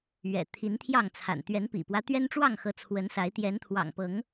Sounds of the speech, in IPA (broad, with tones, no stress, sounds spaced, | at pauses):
ɥ ɛ̰˨˩ t̪ʰ i˨˦ n t̪ʰ j ɑ˥˨ ŋ t͡sʰ a̰˨˩ n t̪ ɥ ɛ˨˦ n p ḭ˨˩ p w ä˦ t̪ ɥ ɛ˦ n ʈ͡ʂ w ɑ˥˨ ŋ x ɤ˨˦ t͡sʰ w ə˨˦ n s a˨˦ ɪ̯ t̪ j ɛ˨˦ n t̪ʰ w ɑ̰˨˩ ŋ p ɤ˨˦ ŋ